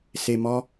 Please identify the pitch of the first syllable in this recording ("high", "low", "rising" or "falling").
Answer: low